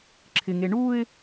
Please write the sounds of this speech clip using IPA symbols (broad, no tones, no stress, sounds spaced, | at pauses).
ǁʰ ɪ ŋ e ɳ u ɪ̯